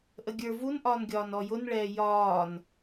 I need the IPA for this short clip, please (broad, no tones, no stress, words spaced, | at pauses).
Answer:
ʔəɡʲə˞ vunʔɒːnɡʲɒːn ɔjʊnɭɛː jɒːn